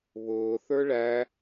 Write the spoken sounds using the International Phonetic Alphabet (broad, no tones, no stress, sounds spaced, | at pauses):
β ʊː θ ə˞ ɭ æ